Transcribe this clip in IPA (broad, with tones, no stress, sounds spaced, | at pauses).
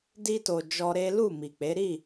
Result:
d i˧ t o˨ d͡ʒ ɔ˧ ɾ e˦ l u˦˨ m i˨ k͡p e˨˦ ɾ i˦˨